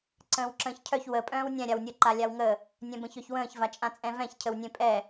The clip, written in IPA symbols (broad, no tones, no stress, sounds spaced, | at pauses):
ǀ ə̃ː w ǁ ə̃ː ç cʰ œ ç w ə pʼ œ̃ː w nʲ ɛ̃ ɾʲ a w nʲ ə ǃ a lʲ a w ŋ ə | nʲ ɛ̃ b ə̃ ç œ ç w ə̃ː ç v a t͡ʃʼ ã t͡sʼ ɛ̃ v ɛ̃ ç cʰ ə w nʲ ẽ pʼ ɛ